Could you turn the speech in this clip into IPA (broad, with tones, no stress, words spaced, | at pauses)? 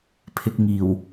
pʰɪ˧k̚ŋiː˨˩w